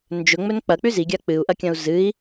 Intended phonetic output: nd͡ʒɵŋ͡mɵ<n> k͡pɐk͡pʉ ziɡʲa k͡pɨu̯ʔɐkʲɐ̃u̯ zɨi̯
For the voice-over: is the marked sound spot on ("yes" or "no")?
yes